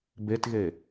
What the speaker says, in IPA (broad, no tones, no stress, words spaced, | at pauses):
betɣe